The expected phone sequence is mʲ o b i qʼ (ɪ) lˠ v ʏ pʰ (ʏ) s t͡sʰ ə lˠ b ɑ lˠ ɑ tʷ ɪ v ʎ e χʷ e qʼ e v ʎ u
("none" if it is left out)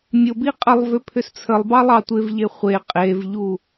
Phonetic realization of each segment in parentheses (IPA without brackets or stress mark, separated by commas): ə, ʏ